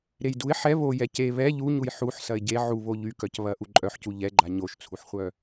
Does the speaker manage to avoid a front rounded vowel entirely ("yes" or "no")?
no